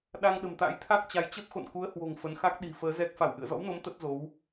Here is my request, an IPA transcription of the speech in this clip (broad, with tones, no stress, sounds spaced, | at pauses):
ɗ a˧ ŋ ɗ ə̤˨˩ m t̪ a̰˧˥ j t̪ʰ a˦˥ k̚ t͡ɕ a˨˦ j t͡ɕ ə˦˥ p̚ x o̰˧˨ n k u˨˦ ə̯ h w o̤˨˩ ŋ f ə˨˦ n x a˦˥ k̚ ɗ i̤˨˩ f əː˨˦ z ɛ˦˥ k̚ f a˧˩ w ʔ ɨ̰˧˨ ə̯ z ɔ̰˧˥ w n o˨˦ m t̪ ə˦˥ t̚ z o˨˦ w